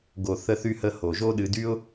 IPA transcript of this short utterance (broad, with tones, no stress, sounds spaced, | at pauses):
ɡ o˨ θ ə˧ θ y˧ h ə˧ h o˨ ʒ o˦ ɗ ɨ˧ d y˦ ʊ̯